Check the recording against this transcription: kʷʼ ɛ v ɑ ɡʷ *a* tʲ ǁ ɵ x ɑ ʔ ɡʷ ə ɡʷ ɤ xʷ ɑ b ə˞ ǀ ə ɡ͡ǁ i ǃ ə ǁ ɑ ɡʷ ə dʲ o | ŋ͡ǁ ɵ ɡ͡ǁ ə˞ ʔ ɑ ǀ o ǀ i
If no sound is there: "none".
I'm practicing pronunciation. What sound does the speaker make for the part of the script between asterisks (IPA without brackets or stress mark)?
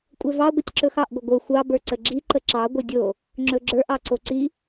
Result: ə